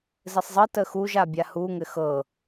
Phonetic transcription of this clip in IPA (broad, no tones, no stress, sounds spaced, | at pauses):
z ɘ sˤ zˤ ɤ t ə x u ʒ a bʲ a h u ŋ ɘ x ɤ